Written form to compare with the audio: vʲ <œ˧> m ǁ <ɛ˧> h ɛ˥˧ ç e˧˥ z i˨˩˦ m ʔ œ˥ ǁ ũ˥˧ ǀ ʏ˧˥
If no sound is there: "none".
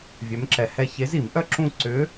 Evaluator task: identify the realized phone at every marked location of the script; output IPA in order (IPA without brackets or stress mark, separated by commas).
œ˧˥, ɛ˧